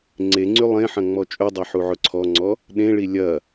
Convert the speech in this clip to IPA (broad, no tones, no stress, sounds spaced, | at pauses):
ŋ͡ǀ e ŋ͡ǀ y lˠ ẽ ħ ɐ̃ ŋ͡m ɔ t͡ʃʼ ɵ dˤ ɐ ħ u ʕ ʊ ǀʰ ɔ ŋ͡ǀ ɔ | ɗ ẽ ɭ i lʲ ɐ